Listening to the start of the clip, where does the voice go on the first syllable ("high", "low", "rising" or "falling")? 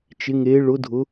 rising